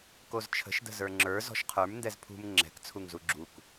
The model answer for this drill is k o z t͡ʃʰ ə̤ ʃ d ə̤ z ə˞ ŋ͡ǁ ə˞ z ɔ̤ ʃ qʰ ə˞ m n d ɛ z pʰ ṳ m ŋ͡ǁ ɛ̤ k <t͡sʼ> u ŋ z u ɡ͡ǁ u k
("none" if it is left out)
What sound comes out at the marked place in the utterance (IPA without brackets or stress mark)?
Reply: t͡sʰ